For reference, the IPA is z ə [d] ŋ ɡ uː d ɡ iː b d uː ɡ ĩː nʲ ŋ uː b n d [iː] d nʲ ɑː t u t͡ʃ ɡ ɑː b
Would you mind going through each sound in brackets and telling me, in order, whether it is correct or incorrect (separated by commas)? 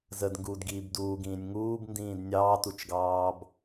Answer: correct, incorrect